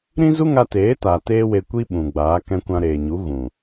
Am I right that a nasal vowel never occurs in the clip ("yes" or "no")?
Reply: no